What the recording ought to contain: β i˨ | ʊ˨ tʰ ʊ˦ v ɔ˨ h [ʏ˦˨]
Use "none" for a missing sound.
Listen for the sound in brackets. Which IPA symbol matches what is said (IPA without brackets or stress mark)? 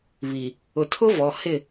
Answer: ɪ˦˨